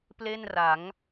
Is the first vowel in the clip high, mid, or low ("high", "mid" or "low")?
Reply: mid